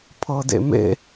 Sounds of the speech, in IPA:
pʰɤdḛmḛ

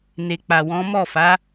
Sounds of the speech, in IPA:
ne˨k͡pa˨wɔ̃˨˦ mɔ˦˨fa˨˦

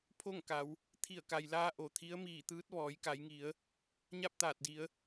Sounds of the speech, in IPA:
pʰo˥˨ŋ ka˩˧w | t̪ʰi˧˩ə̯ka˩jlaː˧ ʔo˩t̪ʰi˧˥ə̯miː˧˩t̪ɯː˧˥t̚ ʋɔː˩˧jka˩˧jŋi˩˧ə̯ | ɲa˥˨p̚t̪aː˧˩t̚di˩˧ə̯

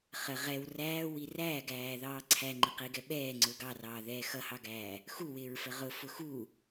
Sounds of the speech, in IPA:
χə ʁɛw ræːwi ræː ɡæːðɑːǀʰæ ŋ͡ǃɪqiɡɛ ɓɛː ŋ͡ǀʊːɡɑrɑː ðɛːxʌhɑɡæː | xuwɪːɹfə ʁʊ fʊxu

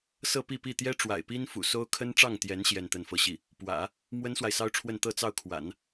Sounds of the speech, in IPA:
sɤ˥˧pi˥˧pi˥˩ t̪jɛ˥ʈ͡ʂwa̰˨˩ɪ̯pi˥nfṵ˨˩ so˥ʊ̯ kʰə˥nʈ͡ʂɑ˥˩ŋt̪jɛ˧˥n ɕjɛ˥˧nt̪ə˥˧nfɤ˥˧ɕi˥˩ | pwä̰˨˩˦ | mwə˥nswa˨ɪ̯sɑ˥ʊ̯ʈ͡ʂʰwə˥˧n t̪ɤ˥˧t͡sɑ˥˩ʊ̯kʰwa̰˨˩˦n

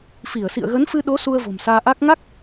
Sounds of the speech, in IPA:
fi˧˩ə̯sḭ˧˨ə̯ɣə˨˦n fɨ˧ɗo˨˦ su˧ə̯vo̤˨˩msaː˧ʔa˦˥k̚ ŋa˦˥k̚

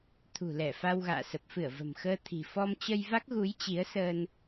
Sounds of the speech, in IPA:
t̪ʰṳ˨˩lɛ˧˩ fa˧wɣa̰ː˧˨ sə˨˩p̚fɨ˧˩ə̯ və̤˨˩mxəː˧t̪ʰi̤˨˩ fɔ˧mt͡ɕə˧jva˦˥k̚ɣu˨˦j t͡ɕi˨˦ə̯səː˧n

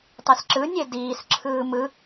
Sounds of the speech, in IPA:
tˤesǁɯ nʲediːs ǁʰɯːmɯ

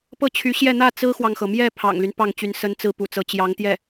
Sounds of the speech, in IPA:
pɤ˥˩t͡ɕʰy˧˥ɕjɛ˥˧ n̪ä˥˩ t͡sɹ̩˥xwɑ˨ŋxɤ˩mjɛ˥˩ pʰɑ̰˨˩ŋly˦n pɑ˥˩ŋt͡ɕy˧˥n sə˧˥nt͡sɹ̩˧˥ pṵ˨˩t͡sɤ˧˥ t͡ɕjɑ˧˥ŋt̪jɛ˥˩

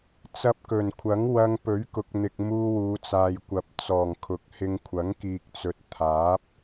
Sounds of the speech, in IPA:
t͡sɐ˧p̚kɵ˨˩nkʷʰɐ˨˥ŋ wɐ˧ŋpɵ˨˥ɥ kʊ˨˥k̚n̪ɪ˨k̚ muː˧ wuː˨˧t͡saː˨jkʷɐ˨p̚ t͡sɔː˨˩ŋkʰʊ˨˥k̚hɪ˧ŋ kʷʰɐ˨˥ŋkiː˨k̚t͡sɵ˨˥t̚ t̪ʰaː˨˥p̚

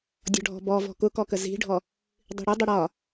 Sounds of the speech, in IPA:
dʲɔ̤ɖʱɔ̤bɔ vɔ̤kʊkɔkə zi̤ɖʱɔ | dˤi̤ɽʊ dˤəɽɒ

